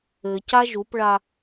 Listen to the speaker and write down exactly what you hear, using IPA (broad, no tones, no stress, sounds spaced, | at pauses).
ɘ c a ʒ u p ɭ a